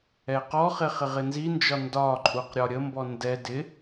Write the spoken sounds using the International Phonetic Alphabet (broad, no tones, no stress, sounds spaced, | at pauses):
ɛ q ɔ χ ɪ χ ɪ ʁ ɪ n z i n d͡ʒ ɒ n d ɒ ǃʼ u q ɾʲ ɒ ɾʲ ə m b ɔ n d ɛ d ɪ